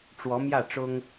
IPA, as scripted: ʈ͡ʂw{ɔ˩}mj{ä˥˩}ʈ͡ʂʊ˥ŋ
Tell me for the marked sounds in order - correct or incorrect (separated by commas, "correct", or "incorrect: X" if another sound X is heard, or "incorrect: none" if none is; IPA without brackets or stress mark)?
incorrect: ɔ˧˥, correct